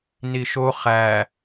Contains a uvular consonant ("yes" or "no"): yes